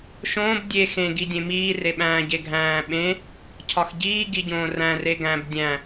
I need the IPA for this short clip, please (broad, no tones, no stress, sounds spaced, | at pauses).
ʃ õː b dʲ e x ẽ ɡ i dʲ ẽ m iː r e ɓ æ̃ː ɟ e ɡʱ æ̃ː ɓ ẽ | cʰ ɒ x ɟ iː ɡ i ɟ õː r æ̃ r e ɡ æ̃ b dʲ æ̃